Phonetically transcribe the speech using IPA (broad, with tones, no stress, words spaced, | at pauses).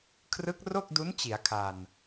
kʰrɯ˦˥k̚ro˥˩k̚du˦˥n t͡ɕi˩˦a̯kʰa˨˩n